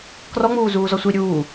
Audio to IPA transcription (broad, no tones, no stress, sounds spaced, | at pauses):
k r ɔ ŋ͡m uː z uː z ɔ sʷ i ɾʲ uː